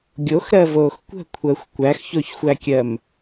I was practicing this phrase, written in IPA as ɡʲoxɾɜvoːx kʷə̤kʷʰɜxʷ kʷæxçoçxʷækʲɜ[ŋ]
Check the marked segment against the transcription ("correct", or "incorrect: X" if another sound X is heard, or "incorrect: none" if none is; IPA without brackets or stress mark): incorrect: m